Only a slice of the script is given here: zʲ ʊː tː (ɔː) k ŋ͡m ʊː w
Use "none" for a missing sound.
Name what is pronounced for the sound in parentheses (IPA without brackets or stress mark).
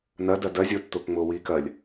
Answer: ʊː